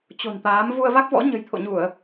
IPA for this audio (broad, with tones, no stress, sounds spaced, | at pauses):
t͡ɕ o̤˨˩ n t̪ aː˨˦ m v u˧ ə̯ v a˦˥ k̚ v ɔ̰˧˥ ɲ ə̤˨˩ j t̪ʰ o̰˧˨ ɲ u˧˩˨ ə̯